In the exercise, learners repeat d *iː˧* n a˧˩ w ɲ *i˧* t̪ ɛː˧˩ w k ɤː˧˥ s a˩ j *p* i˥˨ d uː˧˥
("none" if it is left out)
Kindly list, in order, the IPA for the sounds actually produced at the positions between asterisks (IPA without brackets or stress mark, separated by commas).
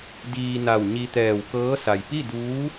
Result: iː˧, i˧, p